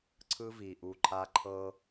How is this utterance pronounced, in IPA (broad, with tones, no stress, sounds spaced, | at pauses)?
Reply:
ǀʰ ɯ˦ v i˨ ʔ u˨ ǃʰ a˦ ǃʰ ɤ˦